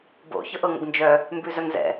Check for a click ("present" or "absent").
absent